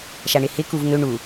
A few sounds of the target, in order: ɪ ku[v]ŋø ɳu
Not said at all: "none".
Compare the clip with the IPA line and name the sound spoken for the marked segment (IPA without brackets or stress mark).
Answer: v